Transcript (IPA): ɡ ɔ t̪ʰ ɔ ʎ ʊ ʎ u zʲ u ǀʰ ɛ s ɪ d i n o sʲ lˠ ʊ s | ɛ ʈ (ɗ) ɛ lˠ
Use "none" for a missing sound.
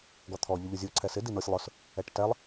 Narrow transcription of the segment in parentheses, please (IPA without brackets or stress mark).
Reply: t